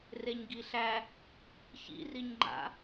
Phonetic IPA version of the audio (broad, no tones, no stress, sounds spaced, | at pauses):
r e ɲ ɡ i ɬ æ | ç ḭ r i ɲ ŋ͡ǃ a̰